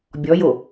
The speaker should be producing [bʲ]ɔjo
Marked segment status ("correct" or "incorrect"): correct